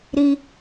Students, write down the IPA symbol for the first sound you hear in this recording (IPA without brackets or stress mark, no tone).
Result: ɾ